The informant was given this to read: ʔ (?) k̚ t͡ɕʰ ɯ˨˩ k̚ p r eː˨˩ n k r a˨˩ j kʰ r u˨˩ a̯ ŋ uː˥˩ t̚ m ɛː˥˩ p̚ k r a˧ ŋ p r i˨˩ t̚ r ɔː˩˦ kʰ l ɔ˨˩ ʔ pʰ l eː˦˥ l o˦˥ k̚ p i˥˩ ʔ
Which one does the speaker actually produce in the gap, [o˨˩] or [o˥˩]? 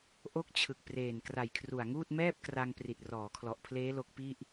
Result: o˥˩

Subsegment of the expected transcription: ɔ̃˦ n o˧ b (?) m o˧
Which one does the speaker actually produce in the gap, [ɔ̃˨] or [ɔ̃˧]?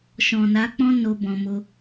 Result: ɔ̃˨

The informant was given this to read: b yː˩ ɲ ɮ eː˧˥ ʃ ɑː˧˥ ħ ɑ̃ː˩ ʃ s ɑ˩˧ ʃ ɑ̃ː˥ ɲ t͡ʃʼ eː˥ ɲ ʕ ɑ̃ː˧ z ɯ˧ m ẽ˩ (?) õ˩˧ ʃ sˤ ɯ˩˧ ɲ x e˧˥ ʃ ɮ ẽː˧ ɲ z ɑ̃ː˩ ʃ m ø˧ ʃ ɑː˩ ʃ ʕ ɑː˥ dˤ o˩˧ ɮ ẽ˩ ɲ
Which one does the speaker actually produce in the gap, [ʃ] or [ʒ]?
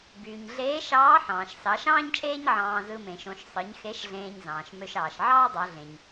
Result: ʃ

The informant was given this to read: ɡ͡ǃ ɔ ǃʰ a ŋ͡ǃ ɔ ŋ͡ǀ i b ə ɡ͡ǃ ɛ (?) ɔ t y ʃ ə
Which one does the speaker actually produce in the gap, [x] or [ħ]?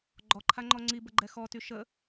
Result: x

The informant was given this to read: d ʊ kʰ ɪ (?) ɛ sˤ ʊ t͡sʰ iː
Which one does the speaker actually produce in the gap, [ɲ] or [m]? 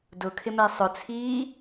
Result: m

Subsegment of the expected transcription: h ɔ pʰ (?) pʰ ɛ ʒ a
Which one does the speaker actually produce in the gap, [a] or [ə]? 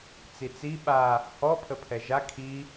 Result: ə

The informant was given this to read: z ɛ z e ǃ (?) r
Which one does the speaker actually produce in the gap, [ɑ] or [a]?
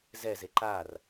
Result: a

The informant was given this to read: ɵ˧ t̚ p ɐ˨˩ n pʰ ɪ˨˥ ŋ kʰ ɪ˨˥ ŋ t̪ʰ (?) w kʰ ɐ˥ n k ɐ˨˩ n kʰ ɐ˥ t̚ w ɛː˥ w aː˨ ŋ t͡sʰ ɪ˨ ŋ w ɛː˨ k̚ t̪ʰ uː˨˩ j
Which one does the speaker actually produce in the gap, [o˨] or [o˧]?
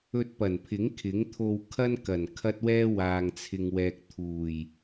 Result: o˧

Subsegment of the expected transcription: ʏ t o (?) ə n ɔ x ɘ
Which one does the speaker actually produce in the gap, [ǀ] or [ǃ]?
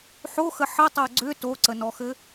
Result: ǀ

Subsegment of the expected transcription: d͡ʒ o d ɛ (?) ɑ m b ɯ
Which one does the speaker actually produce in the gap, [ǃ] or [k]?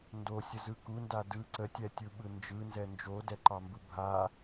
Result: ǃ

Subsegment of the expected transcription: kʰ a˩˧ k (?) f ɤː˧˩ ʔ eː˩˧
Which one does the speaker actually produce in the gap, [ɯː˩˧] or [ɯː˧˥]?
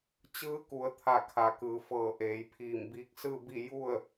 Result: ɯː˩˧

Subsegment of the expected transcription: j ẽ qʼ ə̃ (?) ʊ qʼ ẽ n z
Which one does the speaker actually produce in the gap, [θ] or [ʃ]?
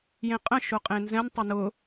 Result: ʃ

